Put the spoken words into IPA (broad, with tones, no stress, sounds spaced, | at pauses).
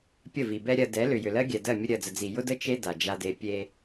pʲ ə˦˨ v i˨ b ɛ˦ ɾʲ ɜ˨ d ɛ˨˦ l ʏ˨ j ʏ˨ l ɜ˦ ɡʲ ɛ˨ d ɜ˦˨ mʲ ə˦ ɾʲ ɜ˨ d͡z ə˨ d͡z i˨ j ʊ˦ d ə˦ t͡ʃ e˦ d a˨ d͡ʒ a˦ d e˦ pʲ e˦